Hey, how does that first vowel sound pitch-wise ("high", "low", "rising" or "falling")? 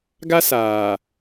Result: high